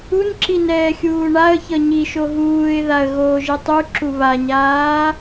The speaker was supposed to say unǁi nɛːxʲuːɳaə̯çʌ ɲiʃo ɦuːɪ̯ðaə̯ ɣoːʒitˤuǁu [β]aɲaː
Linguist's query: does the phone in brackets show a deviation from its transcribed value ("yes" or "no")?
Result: no